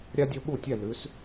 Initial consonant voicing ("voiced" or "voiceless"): voiced